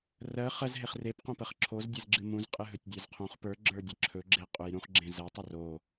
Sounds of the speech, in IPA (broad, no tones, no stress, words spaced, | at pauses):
rɜ χɜz ɦeχrepqõpɜχ ǁʰozdʲez ɡ͡ǁɨmũz qʼɨɦɵtʲdʲə˞zqʰõχ pə˞ɡ͡ǁə˞ dʲɨǁʰɵɡ͡ǁe qʼujɾũχɡ͡ǁẽ zɜtˤɵ ro